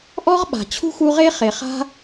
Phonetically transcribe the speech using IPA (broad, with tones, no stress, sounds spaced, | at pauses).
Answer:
ʔ ɔ˦ ʁ ɓ a̤˩ t͡ɕʰ ṳ˥ x u˦ ʁ e˥ χ e˨ χ a̤˦